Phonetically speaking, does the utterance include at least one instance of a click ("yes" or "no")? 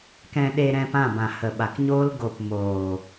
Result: no